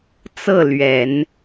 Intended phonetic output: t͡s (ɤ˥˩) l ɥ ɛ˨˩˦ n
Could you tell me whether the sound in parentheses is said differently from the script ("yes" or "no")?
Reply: no